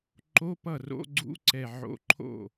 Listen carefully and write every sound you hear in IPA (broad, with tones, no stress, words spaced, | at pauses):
ǃo˧˥˧pʌ˥˩ ro̰˧˥˧ɡ͡ǀṵ˧˥˧ǀɛ˧˩ ʕo̰˧˥˧ǃʰo̰˥˩